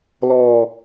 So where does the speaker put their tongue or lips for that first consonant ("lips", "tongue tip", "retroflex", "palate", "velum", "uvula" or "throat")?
tongue tip